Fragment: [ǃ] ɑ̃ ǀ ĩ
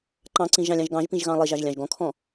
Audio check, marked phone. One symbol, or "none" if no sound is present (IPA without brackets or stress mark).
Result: ǃ